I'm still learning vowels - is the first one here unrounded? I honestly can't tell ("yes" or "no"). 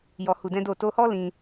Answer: no